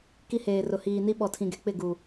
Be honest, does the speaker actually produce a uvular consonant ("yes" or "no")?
no